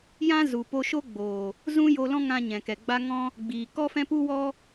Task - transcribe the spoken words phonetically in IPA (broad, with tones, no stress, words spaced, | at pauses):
jã˦zu˨ po˧ʃo˦ɡ͡boː˨ | zũ˦jo˧lɔ̃˦ŋã˧ ɲɛ̃˨kɛ˨ɡ͡ba˦ ŋɔ̃˦ | ɡ͡biː˨ kɔ˦fɛ̃˦pu˦wɔ˦